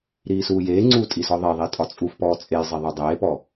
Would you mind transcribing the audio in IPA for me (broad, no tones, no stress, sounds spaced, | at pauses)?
ɾ iː s uː j eː ŋ͡ǀ uː tʼ i s ɔ ðˤ e ðˤ i tʼ ɒ t͡sʼ u f p ɔː t͡sʼ e j zˤ i ðˤ o dˤ eː p ɔ